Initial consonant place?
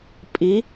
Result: labial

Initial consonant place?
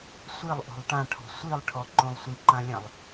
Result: alveolar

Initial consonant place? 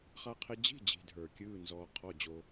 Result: uvular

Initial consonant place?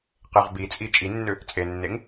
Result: uvular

